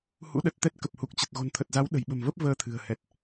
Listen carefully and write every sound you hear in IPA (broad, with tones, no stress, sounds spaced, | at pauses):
h ṵ˧˥ ɗ ə˨˩ t̚ t̪ ɛ˦˥ t̚ k ə˨˩ p̚ h u˨˩ k̚ t͡ɕ ə˨˩ t̚ ɣ o̤˨˩ n t̪ʰ ə˨˩ t̚ z a˨˦ w ɗ ə̤˨˩ j ɓ ə̤˨˩ m v ə˦˥ p̚ v əː˧ t̪ʰ ɨ̤˨˩ ə̯ h ɛ˨˩ t̚